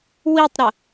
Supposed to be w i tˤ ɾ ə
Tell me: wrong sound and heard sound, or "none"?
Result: none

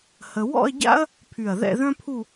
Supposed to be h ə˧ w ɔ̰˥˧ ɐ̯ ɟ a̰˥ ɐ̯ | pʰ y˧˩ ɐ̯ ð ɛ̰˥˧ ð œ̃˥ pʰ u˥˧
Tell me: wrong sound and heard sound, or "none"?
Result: none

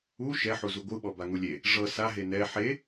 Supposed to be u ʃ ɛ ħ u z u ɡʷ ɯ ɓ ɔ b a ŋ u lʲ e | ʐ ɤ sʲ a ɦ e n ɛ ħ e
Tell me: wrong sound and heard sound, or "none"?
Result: sʲ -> s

